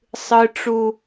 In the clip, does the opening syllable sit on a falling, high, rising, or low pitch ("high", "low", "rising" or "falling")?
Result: high